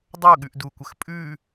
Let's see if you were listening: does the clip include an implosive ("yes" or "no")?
yes